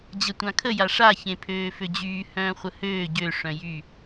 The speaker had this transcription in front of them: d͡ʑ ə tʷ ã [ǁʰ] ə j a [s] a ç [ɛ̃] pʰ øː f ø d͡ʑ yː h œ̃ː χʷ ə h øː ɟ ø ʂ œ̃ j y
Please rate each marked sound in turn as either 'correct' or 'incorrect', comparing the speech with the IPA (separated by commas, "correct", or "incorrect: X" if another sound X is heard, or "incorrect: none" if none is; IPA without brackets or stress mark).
incorrect: kʰ, incorrect: ʂ, incorrect: ẽ